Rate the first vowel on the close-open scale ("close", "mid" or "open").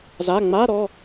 open